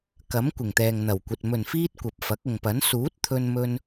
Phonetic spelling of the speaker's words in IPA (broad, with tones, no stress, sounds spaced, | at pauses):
k ɐ˨˥ m kʷ ɪ˨˩ ŋ t̪ ɛː˨ ŋ n̪ ɐ˨˩ w kʷ ɐ˨ t̚ m ɵ˨˩ n f iː˧ t̚ kʷ ɐ˨ p̚ f ɐ˨˥ k̚ ʊ˨ ŋ p ɐ˨˥ n s uː˨˥ t̚ t̪ʰ ɵ˧ n m ɵ˧ n